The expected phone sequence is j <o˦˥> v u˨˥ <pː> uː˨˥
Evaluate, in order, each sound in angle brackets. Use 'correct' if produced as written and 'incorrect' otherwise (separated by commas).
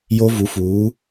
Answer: correct, incorrect